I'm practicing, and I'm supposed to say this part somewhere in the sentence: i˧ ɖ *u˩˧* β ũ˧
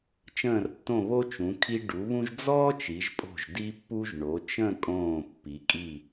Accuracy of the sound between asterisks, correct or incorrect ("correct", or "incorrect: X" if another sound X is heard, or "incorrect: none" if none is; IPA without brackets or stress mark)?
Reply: correct